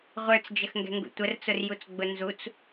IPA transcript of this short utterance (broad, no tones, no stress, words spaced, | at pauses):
ʁʷə˞t͡sd͡ʒəxŋɡɛ̤ŋɡṵ tʷərt͡sʊrjut͡sɡ͡bʊ nzut͡s